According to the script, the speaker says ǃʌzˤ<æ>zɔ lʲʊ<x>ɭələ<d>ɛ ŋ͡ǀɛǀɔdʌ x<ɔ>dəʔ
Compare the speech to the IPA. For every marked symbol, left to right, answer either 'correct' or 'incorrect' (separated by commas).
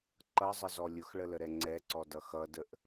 incorrect, correct, incorrect, incorrect